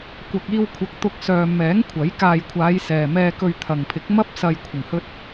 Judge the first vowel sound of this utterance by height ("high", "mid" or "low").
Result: low